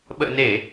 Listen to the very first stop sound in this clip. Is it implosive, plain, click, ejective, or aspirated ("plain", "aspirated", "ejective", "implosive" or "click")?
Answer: implosive